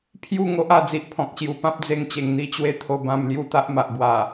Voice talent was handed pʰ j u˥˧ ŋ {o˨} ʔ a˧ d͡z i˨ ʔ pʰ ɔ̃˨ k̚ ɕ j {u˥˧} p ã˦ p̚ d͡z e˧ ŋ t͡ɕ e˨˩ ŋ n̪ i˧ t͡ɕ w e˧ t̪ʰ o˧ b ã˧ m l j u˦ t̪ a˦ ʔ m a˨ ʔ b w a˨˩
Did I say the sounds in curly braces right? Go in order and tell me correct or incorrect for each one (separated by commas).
incorrect, incorrect